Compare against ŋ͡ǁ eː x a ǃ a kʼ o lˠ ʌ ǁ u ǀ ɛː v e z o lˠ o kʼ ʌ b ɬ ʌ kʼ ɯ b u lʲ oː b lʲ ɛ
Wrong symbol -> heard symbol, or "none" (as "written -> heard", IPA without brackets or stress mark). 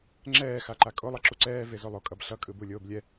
eː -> ɛː